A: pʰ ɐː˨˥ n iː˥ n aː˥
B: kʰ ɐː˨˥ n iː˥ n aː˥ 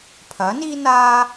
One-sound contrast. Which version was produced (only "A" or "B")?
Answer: A